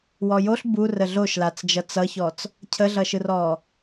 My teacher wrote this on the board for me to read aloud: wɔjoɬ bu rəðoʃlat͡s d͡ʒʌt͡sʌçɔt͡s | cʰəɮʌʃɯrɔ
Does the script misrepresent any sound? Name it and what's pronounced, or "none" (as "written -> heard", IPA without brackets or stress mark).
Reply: ð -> ɮ